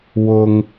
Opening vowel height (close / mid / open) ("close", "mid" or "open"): close